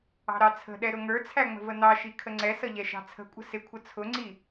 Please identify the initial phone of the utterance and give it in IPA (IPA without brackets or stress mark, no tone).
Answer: ɑ̤